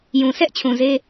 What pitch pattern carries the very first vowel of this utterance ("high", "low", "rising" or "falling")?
low